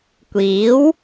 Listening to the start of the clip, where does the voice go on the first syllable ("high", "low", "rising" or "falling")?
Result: rising